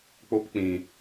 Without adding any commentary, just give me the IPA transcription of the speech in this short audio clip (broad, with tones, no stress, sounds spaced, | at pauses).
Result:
k͡p o˦ p k͡p ĩ˧